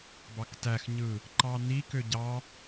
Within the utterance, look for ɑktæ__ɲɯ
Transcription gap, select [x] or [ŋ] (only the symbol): x